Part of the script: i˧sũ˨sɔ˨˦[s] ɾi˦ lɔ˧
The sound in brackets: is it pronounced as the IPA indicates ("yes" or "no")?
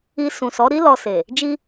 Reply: no